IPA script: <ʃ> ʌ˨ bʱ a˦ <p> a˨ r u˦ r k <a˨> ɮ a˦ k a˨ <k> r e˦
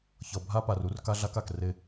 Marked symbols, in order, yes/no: no, yes, no, yes

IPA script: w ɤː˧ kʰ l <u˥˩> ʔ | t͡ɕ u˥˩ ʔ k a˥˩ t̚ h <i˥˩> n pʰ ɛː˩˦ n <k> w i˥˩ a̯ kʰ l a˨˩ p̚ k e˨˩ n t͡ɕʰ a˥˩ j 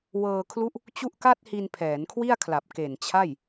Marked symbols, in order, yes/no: yes, no, no

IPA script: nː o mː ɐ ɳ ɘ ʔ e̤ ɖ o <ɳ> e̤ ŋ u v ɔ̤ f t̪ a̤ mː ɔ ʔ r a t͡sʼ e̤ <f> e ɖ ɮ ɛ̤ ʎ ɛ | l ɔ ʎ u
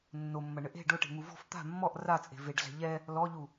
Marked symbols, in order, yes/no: no, no

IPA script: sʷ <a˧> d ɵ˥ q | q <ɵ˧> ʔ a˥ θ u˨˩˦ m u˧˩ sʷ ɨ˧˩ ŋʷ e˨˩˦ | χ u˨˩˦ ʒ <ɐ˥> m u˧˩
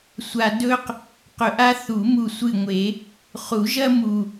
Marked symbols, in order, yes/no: yes, yes, yes

